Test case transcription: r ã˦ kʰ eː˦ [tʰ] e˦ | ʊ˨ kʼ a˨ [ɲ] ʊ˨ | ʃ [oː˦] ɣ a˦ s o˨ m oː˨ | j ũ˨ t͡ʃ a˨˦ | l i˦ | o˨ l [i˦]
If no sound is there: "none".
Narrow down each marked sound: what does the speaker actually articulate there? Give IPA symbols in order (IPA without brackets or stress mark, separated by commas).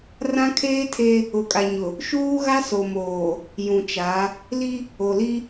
tʰ, ɲ, uː˦, i˦